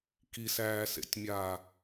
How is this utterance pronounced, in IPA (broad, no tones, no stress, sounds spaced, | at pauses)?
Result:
k i s æː s ḛ tʲ mʲ aː